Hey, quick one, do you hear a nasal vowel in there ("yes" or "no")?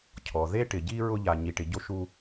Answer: no